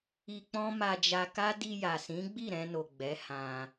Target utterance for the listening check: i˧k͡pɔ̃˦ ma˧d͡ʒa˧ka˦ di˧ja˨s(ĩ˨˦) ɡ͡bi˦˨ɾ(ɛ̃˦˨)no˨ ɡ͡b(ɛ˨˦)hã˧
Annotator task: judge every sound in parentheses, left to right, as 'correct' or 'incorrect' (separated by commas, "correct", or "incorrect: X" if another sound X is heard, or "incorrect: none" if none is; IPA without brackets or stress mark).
correct, incorrect: ɛ̃˧, correct